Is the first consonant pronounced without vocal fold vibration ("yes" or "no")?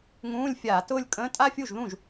no